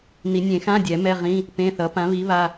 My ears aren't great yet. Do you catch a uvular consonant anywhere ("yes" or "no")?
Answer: yes